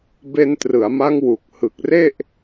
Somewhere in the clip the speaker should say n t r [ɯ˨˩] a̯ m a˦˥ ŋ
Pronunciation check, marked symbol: incorrect: ɯ˩˦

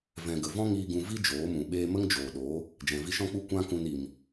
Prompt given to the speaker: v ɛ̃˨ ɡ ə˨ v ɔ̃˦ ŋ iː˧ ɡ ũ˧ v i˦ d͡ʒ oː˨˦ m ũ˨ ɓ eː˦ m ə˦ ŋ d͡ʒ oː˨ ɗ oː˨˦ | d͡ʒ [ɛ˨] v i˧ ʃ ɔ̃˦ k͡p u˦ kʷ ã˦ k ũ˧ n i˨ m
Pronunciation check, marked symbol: incorrect: ɛ̃˨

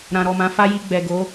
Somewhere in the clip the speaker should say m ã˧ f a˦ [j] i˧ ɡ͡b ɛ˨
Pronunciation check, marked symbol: correct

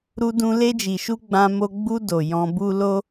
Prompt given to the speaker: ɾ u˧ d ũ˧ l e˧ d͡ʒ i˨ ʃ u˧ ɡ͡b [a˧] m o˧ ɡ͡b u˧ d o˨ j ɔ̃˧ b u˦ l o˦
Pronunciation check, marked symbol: incorrect: ã˧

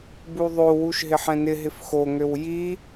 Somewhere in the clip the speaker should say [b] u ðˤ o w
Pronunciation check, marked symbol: correct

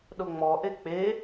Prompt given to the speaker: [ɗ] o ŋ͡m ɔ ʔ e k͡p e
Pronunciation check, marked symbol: correct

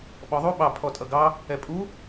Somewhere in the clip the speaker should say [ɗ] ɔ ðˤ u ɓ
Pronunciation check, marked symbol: incorrect: ɓ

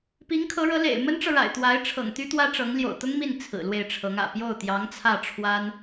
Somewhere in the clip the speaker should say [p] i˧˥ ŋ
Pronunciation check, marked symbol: correct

